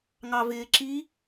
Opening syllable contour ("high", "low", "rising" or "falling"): low